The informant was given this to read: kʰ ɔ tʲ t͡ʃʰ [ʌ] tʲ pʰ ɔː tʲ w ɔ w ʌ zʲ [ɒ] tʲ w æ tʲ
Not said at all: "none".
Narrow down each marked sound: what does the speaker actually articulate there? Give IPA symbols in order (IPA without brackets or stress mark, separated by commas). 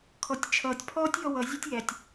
ʌː, ɒ